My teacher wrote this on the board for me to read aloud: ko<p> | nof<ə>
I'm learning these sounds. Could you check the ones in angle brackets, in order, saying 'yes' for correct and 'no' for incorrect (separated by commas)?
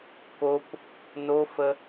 yes, yes